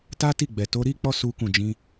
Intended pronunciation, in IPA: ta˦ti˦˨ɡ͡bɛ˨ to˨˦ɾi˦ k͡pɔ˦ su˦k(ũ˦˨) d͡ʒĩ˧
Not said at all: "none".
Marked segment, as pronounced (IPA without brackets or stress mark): ũ˦˨